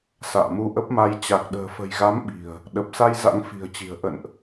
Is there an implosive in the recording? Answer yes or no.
yes